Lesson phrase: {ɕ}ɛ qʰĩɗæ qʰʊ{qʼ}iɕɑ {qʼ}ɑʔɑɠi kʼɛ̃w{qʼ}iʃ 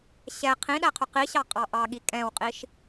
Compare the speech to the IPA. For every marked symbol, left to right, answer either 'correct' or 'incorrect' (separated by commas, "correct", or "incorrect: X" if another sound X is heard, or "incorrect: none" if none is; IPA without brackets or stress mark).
correct, incorrect: q, correct, correct